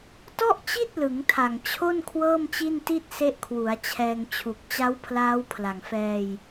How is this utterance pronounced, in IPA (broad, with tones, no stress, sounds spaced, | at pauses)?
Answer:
t ɔ˥˩ ʔ t͡ɕ i˥˩ t̚ l ɯ˩˦ ŋ tʰ a˨˩ ŋ t͡ɕʰ o˥˩ n kʰ w ɤː˥˩ m t͡ɕ i˥˩ n t i˥˩ t̚ s e˦˥ ʔ kʰ w u˩˦ a̯ t͡ɕʰ ɛː˧ ŋ t͡ɕʰ u˨˩ k̚ t͡ɕ a˦˥ w pʰ l aː˦˥ w pʰ l a˨˩ ŋ f ɛː˧ j